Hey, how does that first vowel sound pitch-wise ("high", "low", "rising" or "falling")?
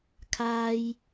high